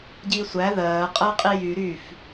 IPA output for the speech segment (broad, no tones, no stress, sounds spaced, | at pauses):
ɟ iː sʷ æ ð ɜː qʼ ɜ qʼ i j y ɾ y f